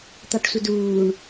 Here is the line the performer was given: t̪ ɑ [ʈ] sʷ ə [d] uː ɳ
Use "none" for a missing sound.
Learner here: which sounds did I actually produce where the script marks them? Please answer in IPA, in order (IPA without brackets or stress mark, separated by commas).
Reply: ʈ, d